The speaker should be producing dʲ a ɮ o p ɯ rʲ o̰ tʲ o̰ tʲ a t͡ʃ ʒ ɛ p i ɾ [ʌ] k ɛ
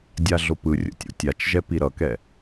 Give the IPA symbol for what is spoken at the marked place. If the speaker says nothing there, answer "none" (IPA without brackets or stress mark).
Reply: ʌ